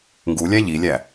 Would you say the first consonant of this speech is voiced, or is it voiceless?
voiced